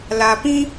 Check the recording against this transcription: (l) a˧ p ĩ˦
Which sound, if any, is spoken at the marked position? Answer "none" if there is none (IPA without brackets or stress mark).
l